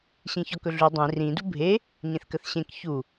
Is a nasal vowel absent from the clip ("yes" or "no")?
no